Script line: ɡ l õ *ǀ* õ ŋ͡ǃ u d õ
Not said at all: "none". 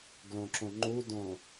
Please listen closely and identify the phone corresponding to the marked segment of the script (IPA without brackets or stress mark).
ǁ